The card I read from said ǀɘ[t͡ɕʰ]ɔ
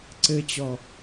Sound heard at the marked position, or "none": t͡ɕ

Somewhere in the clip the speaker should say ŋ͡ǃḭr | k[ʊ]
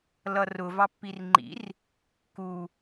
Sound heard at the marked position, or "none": u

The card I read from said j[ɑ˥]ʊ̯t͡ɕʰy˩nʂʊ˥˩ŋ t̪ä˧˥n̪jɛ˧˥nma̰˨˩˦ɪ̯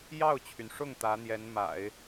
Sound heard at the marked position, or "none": ɑ˥˩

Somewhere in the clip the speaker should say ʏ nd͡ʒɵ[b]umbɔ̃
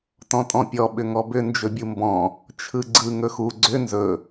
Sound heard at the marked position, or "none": bʲ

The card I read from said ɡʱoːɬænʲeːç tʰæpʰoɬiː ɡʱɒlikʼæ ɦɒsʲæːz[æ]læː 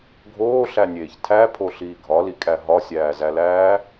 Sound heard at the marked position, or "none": æ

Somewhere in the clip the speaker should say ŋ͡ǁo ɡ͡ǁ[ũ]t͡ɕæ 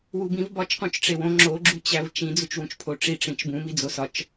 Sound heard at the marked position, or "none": u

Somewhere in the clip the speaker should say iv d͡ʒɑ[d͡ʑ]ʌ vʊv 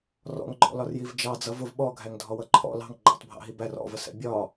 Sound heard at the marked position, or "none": d͡z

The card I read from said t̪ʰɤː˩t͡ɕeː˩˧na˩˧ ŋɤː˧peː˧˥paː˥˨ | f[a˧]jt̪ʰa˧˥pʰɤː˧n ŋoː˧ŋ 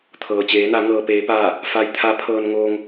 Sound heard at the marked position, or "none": a˧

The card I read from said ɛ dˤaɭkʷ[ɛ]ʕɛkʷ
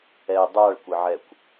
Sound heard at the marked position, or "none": ɪ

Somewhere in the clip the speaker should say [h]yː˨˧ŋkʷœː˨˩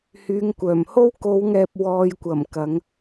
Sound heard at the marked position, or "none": h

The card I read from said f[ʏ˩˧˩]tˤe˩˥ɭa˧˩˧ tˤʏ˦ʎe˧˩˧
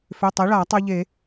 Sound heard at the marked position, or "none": ʏ˩˧˩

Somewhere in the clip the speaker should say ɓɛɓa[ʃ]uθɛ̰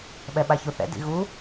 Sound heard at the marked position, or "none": ç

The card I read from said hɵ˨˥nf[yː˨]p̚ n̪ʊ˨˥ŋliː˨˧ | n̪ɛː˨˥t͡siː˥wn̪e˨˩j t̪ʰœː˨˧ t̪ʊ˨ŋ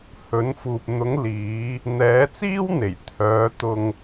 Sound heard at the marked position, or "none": uː˨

